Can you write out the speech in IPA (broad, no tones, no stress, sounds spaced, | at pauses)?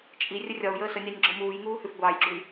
t͡ʃʼ i rʲ ə rʲ ɒ u̯ j əː s ə nʲ ɑ nʲ ɡ͡ǁ ɔ m uː j ŋ uː h ʉ f ɡʷ ɑː j ɡ͡ǁ u i̯